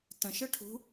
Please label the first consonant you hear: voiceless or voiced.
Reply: voiceless